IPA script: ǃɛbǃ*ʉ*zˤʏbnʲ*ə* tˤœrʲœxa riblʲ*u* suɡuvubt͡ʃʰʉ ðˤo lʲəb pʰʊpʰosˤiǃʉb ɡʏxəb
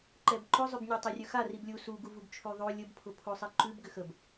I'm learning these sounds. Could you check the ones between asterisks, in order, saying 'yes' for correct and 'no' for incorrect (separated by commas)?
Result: no, no, yes